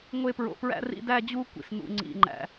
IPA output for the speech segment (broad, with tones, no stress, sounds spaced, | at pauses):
ŋʷ e˥ p ɹ o̰˦ p ɹ æ̰˥ r ḭ˥ d æ˥ d͡ʑ u˥ kʷ ḭ˦ s n ṵ˦ ŋ͡ǀ ḭ˦ ŋ͡ǃ æ̰˦